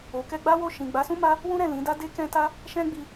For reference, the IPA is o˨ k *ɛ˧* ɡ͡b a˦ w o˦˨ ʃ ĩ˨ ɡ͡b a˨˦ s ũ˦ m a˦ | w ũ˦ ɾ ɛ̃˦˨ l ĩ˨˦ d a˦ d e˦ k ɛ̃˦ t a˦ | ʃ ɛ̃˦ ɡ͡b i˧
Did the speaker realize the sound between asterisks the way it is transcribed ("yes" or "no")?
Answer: yes